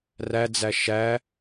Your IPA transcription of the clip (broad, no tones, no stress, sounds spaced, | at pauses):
r æ d͡z æ ʃ æ